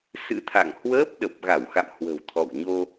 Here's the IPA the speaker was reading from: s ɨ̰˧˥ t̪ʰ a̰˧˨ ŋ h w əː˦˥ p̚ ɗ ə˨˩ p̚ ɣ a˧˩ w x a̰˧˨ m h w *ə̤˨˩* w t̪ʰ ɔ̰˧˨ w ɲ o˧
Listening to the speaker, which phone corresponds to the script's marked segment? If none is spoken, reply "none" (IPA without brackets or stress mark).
ə̤˨˩